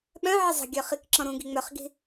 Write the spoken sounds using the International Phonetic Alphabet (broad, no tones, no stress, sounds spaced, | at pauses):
ɓ œ̃ ʕ ɪ zˤ ə̤ ɡʲ œ χ i k ǁ ɔ̃ ɾ ũ ɡ i ŋ͡m œ χ ɡ i̤